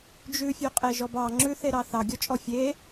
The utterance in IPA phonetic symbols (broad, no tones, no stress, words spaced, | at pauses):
d͡ʒʉfʲøqʼeʒɔb ɑ ŋ͡ǁʉθeɾɑ θɑɡʲɔt͡ʃʼɔ fʲe